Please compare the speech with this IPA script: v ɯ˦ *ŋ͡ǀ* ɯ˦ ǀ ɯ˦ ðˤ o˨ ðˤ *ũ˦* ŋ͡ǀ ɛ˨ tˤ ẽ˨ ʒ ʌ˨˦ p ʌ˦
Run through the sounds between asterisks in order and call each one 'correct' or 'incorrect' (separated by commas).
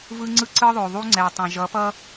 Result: correct, incorrect